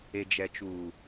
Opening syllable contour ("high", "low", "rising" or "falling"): low